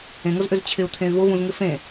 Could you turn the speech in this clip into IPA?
ẽŋʊzʔʏz t͡ɕʰɪu̯t̪ʰẽy̯ vʊvũzŋɪ fẽ

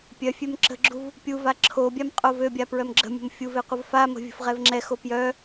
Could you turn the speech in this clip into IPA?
pʲœfʲøm ǁə̤ɡ͡ǁuv | pʲuva ǁʰobʲam qʼovøbʲa pɹœmɡ͡ǁə̤mʲə̤m fʲuve qʷəvfamə̤ vʲə̤fʁɛvŋ͡ǁɛxo pjœ

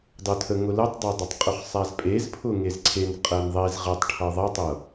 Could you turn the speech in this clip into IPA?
dˤʊtʰə ŋʊlətˤdˤadˤʌtˤ qʼʊχsˤazpʼez pʰʊŋezǀʰen qʼɜnðˤez ʁətˤʈʰʌ ðˤʌtˤɤ

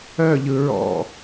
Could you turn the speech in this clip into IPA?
œʎɯ ɹɔ̰

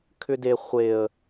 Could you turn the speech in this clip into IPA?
kʰʏde χʷeə̯

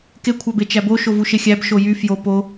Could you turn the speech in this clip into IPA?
kekʷʰɑbe t͡ʃæbo ʃovuʃexʲæb ʃojy fjo po

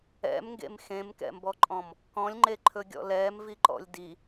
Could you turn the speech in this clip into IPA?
ɛ̰mŋɡḛm xẽmkɛ̰mbɔǃʼɔ̃m | kɔ̃lʲŋ͡ǃeǃʰɵɡʲɔ̰ lɛːmviǃɔ̰lʲ di

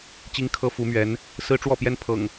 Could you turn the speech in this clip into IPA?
t͡ɕi˦ŋkʰɤ˦fu˨˦mɥɛ˨˦n | sɹ̩˦ʈ͡ʂwɔ˥˨pjɛ˦n pʰɤ̰˨˩ŋ

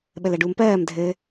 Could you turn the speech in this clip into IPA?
ɓəlɜɖuːmpɜːm dʱɘ

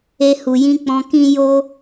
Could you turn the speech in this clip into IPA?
e˧ hu˨jĩ˧ k͡pɔ̃˧kĩ˦jo˦

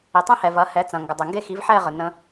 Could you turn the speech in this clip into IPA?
i˨tˤẽ˦hɛ˨ vɐ˨˦hɛ˨˦ t͡sɐ̃˨ŋɡɐ˨dˤɛ˨ ŋɡe˦˨xi˨˦vħɛ˦˨ ʁə˨nə̃˧

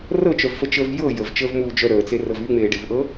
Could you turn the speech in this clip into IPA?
rɤt͡ʃœvfət͡ʃəːv jɤ jəvt͡ʃəːvmuːd͡ʒœ ɾəːt͡serɤv yŋ͡meːɖevʔɤ

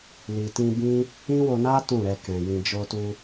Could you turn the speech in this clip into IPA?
li˨tĩ˧ bĩ˦ | ĩ˦wo˧na˦ tũ˦˨ɾɛ˧kɛ̃˨ jĩ˨d͡ʒo˧ tu˧

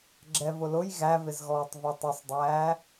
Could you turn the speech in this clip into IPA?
ɡ͡ǁɛvʊlʊj ɣævɪzɣɔːtˤ vɛtˤʊsˤdˤæː

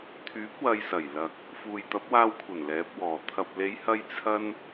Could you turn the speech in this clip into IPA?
t̪ʰyː˨˥p̚ wɐ˧jsɐ˨˩jlɐ˨k̚ | fuː˨jt̪ɐ˨˥p̚waː˧wkʷʰɐ˨˩n lɛː˨˥p̚wɔː˨˩ t̪ʰɐ˨p̚le˨˧jhɐ˧j t͡sʰɐ˥n

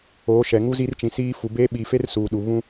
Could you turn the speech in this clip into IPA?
oː˨˦ʃɛ˨ŋu˦ zi˦rt͡ʃĩ˨siː˦ fu˨beː˦ɓiː˨fe˦r suː˨ɗu˨ βũ˦

